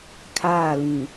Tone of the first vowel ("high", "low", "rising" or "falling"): falling